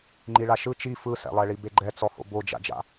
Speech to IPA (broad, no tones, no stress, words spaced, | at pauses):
ŋ͡ǃiɭaʃɯ t͡ʃi fɯsɛ̰lˠɛɭi beɡ͡ǃɛt͡sɔho̰ bod͡ʒa̰d͡ʒa̰